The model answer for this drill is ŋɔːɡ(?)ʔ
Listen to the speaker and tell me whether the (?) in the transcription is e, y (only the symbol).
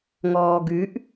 y